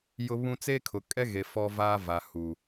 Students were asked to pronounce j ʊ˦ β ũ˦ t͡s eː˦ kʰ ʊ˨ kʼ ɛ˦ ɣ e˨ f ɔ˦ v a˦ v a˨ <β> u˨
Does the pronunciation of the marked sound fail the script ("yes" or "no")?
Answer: yes